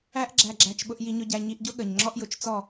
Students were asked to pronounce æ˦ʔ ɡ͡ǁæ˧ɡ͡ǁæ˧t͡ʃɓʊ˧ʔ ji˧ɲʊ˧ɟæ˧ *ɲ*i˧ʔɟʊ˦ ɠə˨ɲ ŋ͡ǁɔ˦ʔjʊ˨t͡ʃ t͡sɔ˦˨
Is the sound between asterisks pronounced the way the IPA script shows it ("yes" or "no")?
yes